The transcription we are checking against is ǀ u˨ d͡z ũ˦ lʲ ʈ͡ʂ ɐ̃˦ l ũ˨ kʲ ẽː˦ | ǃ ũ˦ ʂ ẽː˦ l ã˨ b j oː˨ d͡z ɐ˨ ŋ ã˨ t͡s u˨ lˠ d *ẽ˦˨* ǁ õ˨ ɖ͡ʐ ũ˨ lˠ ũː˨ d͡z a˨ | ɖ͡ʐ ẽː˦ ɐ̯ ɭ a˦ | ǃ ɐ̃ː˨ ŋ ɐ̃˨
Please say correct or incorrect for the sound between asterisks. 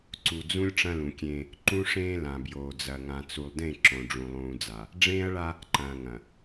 correct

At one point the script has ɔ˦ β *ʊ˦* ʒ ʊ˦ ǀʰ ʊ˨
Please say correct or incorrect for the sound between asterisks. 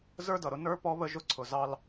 incorrect: ə˦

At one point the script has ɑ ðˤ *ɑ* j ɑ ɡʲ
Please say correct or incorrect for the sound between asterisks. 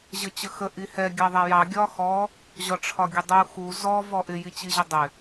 incorrect: a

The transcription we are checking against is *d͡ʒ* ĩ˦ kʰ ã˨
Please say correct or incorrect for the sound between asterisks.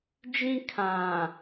correct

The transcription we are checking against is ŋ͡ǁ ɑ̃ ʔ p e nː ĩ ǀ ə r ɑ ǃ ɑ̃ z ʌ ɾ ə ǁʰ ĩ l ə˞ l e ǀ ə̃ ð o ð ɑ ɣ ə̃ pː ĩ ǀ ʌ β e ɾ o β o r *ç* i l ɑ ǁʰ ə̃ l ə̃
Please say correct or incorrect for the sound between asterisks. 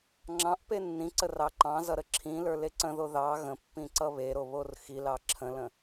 incorrect: x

